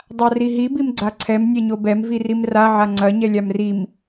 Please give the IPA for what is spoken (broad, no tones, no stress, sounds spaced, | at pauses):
dˤ a r i ɦ i b i m ɡ͡ǀ a ǀʰ ɛ m nʲ ɛ ɲ o b ɛ m v i r i m r a ʕ a ŋ͡ǀ ɐ ɲ ɛ lʲ a m r i m